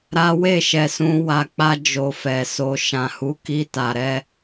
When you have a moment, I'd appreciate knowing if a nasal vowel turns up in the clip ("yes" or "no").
yes